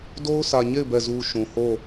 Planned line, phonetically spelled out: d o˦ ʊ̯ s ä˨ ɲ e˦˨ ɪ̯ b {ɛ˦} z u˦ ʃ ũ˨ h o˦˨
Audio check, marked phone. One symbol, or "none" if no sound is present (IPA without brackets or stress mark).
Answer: ɛ˦˨